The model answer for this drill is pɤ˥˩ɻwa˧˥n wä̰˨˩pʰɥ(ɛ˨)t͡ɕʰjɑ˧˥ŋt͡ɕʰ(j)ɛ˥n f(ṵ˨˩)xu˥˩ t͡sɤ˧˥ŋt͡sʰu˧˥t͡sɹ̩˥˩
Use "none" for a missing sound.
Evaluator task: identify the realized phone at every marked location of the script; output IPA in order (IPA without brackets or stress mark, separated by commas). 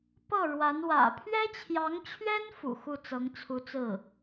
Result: ɛ˥, ɥ, ṵ˨˩